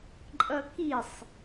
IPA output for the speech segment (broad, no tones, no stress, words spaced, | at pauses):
ǃʼʌkisˤ